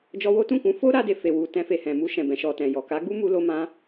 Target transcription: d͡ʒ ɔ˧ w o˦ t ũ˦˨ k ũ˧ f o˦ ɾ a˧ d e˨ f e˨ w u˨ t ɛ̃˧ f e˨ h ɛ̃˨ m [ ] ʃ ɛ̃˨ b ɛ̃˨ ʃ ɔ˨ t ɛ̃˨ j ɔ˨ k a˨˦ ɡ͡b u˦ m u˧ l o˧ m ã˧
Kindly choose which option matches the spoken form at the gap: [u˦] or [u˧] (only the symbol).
u˧